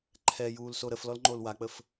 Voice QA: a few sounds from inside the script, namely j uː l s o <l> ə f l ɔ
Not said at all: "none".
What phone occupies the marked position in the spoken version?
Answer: ɾ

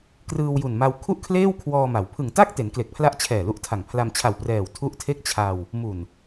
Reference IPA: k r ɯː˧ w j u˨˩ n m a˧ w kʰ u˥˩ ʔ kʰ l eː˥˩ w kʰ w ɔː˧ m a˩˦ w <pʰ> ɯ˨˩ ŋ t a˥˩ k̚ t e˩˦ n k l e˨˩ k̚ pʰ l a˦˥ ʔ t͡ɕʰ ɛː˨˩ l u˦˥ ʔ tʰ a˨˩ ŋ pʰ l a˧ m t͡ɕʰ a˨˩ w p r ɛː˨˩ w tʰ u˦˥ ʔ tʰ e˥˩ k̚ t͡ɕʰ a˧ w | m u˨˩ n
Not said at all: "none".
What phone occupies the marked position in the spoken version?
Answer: pʰ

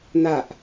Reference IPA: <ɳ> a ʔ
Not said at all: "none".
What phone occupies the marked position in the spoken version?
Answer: n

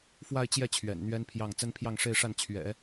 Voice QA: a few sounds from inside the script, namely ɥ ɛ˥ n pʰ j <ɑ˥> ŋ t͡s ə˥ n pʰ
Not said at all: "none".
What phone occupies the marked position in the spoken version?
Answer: ɑ˥˩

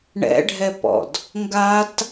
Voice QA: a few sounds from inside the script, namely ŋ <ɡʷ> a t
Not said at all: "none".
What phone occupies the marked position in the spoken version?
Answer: ɡ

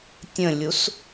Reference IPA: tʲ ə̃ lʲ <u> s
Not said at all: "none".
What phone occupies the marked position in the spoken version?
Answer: u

